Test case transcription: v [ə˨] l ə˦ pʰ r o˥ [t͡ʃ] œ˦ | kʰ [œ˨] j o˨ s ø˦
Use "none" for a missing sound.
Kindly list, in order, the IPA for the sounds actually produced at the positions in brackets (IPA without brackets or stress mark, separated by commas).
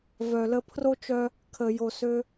œ˨, t͡ʃ, ə˨